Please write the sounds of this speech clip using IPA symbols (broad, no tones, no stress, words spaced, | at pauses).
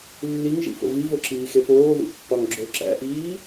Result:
lːiŋʒḭfo̰ vivoǁiːxe poːðṵpːɒŋ ɡ͡ǁo ǁæ̰ʔiː